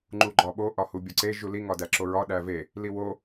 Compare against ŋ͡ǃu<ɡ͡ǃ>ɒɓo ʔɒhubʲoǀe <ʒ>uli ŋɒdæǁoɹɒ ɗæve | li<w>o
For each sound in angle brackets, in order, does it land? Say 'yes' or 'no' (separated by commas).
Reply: yes, yes, yes